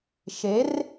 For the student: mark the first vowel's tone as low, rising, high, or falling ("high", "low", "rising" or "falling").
rising